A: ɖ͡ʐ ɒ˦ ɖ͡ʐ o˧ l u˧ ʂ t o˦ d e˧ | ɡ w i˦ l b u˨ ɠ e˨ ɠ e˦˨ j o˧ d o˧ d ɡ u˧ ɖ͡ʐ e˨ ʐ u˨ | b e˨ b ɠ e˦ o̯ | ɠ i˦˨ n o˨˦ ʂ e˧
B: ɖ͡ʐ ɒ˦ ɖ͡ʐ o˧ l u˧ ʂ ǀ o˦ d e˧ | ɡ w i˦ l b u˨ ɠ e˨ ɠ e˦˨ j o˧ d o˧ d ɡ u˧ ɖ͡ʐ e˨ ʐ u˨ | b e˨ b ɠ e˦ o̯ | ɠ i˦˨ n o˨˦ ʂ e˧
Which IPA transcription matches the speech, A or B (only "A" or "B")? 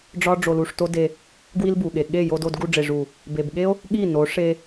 A